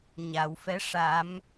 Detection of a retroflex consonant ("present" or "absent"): present